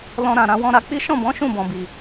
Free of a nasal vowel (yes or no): no